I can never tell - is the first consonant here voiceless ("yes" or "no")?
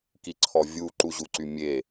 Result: yes